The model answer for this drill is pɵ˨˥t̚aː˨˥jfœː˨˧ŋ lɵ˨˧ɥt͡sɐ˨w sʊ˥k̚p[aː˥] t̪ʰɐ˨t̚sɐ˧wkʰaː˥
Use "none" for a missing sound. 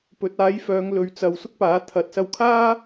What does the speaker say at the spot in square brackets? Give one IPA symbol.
aː˨˥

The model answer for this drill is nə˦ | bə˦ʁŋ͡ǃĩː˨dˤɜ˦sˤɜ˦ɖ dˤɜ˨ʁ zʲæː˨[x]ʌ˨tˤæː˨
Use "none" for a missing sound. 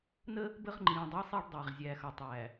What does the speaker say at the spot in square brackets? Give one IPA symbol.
x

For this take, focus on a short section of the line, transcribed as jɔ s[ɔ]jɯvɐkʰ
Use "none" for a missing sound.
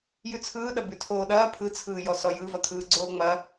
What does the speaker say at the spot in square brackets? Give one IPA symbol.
ɔ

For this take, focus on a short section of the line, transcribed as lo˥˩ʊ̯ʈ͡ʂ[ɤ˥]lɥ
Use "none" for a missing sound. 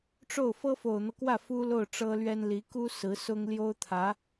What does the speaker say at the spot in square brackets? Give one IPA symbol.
ɤ˥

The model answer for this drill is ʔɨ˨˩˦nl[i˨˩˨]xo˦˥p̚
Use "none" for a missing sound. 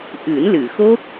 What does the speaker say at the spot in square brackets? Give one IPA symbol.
ɨ˨˩˨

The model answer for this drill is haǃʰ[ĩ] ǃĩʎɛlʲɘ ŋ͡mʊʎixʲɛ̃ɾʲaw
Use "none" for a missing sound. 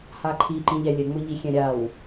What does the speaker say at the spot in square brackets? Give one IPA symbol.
i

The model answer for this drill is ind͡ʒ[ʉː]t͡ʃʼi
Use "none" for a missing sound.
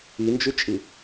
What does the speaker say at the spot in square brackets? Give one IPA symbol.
ʉ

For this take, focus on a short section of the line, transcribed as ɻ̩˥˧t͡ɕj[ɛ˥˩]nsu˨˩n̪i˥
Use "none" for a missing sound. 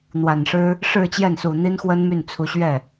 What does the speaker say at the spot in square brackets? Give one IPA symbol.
ɛ˥˩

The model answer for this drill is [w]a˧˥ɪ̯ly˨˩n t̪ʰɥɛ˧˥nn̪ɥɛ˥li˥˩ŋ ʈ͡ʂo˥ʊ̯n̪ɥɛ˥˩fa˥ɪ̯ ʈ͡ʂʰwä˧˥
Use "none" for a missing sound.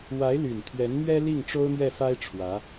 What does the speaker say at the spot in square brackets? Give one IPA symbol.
w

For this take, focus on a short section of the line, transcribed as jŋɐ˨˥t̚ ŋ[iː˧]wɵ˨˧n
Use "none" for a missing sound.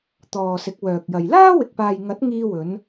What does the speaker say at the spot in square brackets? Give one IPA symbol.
iː˧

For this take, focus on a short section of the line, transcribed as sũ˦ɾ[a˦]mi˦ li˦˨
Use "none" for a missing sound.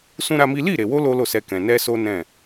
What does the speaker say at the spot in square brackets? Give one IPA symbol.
a˦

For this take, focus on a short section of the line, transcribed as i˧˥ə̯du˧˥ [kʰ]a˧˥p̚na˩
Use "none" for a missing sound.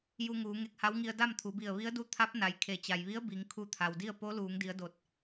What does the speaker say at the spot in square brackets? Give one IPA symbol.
t̪ʰ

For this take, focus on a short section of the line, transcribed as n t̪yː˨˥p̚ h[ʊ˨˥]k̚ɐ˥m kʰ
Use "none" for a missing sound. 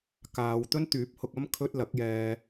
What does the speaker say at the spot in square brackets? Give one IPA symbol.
ʊ˧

